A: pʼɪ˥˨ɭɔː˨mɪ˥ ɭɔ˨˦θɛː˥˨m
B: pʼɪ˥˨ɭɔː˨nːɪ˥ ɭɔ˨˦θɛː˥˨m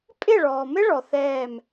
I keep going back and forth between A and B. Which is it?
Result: A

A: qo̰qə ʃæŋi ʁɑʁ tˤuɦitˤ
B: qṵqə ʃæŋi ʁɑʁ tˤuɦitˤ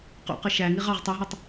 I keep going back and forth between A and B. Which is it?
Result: B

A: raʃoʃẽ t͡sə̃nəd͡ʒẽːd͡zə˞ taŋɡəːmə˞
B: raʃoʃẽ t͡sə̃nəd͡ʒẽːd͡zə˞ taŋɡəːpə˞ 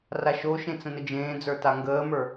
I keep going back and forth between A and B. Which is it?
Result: A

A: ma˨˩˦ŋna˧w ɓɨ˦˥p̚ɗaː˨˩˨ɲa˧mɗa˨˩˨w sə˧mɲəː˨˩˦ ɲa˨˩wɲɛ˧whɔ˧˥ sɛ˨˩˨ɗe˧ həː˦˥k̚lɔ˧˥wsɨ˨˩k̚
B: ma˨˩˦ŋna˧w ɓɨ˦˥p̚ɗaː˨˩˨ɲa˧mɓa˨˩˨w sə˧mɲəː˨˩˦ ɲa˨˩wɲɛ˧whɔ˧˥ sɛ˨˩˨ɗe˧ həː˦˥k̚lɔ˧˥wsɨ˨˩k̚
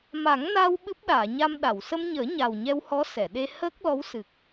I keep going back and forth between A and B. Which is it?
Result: A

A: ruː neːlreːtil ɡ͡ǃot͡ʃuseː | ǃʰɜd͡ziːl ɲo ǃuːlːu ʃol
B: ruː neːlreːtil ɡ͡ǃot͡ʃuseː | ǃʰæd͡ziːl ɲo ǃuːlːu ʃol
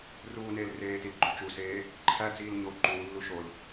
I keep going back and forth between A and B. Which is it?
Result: B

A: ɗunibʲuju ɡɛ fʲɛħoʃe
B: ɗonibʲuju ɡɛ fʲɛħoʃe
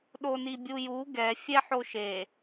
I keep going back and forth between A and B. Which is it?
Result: B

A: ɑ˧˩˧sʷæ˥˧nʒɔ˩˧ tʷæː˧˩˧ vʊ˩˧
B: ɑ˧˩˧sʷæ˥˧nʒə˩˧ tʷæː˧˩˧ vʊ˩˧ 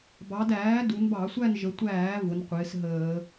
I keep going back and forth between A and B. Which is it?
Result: B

